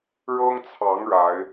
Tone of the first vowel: high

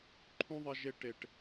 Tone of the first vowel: high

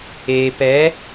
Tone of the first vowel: low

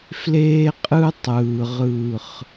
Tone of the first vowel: high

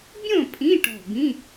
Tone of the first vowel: falling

